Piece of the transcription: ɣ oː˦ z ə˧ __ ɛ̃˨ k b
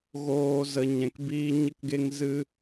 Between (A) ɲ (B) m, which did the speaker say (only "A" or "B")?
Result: A